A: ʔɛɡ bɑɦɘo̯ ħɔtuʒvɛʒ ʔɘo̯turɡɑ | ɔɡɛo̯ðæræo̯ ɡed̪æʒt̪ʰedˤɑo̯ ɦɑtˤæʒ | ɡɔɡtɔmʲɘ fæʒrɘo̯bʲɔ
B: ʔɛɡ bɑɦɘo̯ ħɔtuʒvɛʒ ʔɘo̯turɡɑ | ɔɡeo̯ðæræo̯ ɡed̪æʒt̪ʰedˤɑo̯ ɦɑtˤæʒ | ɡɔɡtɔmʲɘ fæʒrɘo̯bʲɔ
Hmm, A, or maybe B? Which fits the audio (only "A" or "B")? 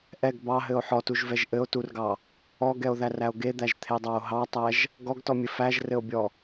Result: A